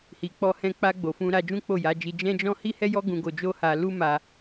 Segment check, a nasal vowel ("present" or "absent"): present